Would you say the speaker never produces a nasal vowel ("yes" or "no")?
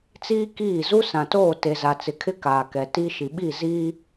no